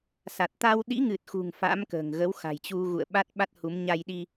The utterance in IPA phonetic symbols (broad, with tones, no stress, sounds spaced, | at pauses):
s a˨˩ t̚ t̪ a˧ w ɗ ḭ˧˥ ŋ ɨ˨˩ t̚ x ṳ˨˩ ŋ f a̰˧˥ m k ə̤ː˨˩ ŋ ɣ ə˨˦ w x a̤˨˩ j t͡ɕ u˧ ɣ ṵ˧˨ ə̯ ɓ a˦˥ t̚ ɓ a˦˥ t̚ h u˨˦ m ɲ a˧ j ɗ i˧